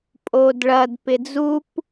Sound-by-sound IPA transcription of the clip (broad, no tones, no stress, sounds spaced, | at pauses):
pʼ oː d ɭ ɐ d p ɪ d͡z u p